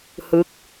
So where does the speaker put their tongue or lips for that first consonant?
throat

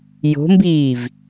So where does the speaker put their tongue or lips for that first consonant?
palate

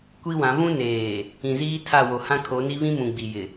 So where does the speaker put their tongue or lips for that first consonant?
velum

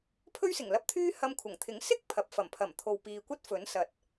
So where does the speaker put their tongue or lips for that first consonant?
lips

